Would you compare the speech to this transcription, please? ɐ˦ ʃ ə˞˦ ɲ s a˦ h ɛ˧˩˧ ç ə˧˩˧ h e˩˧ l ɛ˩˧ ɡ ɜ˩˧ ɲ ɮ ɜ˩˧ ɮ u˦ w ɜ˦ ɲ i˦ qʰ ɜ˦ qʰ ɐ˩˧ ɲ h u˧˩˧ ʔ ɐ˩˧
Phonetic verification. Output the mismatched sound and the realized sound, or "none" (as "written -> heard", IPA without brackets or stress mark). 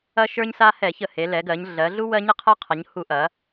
none